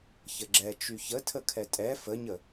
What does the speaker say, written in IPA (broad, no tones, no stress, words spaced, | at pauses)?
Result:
çəɡ͡ǁɛ t͡ʃyçətʰə kʰɛtʼɛ fəɲə